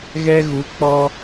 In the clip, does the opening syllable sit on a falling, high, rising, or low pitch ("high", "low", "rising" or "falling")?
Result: high